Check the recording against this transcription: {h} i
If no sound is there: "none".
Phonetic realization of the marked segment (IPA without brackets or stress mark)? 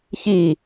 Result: ç